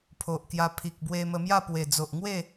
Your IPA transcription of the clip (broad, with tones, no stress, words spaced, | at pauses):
pʰo˨ʔkja˧ pʰi˨k̚ bwe˧mə˧mja˥˧ pwe˨˩ d͡zo˨ʔŋwe˥˧